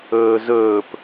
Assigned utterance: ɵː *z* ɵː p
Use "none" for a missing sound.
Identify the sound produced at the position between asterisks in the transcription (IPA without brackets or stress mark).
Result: z